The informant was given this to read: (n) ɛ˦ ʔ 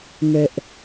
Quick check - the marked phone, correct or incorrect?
correct